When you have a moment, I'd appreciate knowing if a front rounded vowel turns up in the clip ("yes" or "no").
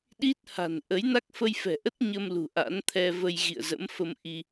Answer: no